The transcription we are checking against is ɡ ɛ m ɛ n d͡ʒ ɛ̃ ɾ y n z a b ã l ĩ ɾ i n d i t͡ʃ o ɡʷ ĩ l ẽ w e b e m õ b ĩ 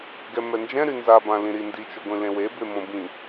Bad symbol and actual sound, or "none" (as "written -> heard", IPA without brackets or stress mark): none